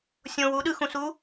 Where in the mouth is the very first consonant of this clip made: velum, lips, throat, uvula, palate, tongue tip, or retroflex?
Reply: tongue tip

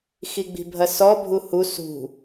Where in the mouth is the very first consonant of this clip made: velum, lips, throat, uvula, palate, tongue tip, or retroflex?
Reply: velum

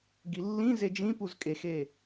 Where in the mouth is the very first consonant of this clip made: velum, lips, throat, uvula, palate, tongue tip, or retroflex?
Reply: velum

